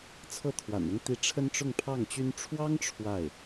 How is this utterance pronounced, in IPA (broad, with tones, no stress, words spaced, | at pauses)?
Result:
t͡sʰɤ˥˩ t̪ʰwa̰˨˩nʊ˥ŋ t̪i˧˥ ʈ͡ʂʰə˥nʈ͡ʂʊ˥˧ŋpʰɑ˥˩ŋt͡ɕy˥n ʈ͡ʂʰwɑ˥ŋ ʈ͡ʂʰwa˥˩ɪ̯